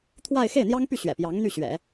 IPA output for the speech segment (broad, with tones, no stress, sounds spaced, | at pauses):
t̪ʰ w a˥˧ ɪ̯ x e˥˩ ɪ̯ n̪ j ɑ˥ ŋ p y˥˩ ɕ ɥ ɛ̰˨˩ p j ɑ˧˥ ŋ n̪ y˥˩ ɕ ɥ ɛ̰˨˩˦